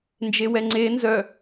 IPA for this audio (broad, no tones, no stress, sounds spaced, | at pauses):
n d͡ʒ e w ɛ ŋ͡ǀ e n z œ